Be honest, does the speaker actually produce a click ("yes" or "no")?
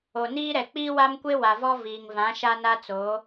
no